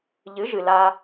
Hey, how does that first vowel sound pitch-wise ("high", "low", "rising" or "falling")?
rising